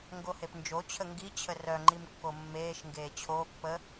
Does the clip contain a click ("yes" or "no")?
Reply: yes